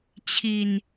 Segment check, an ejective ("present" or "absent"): absent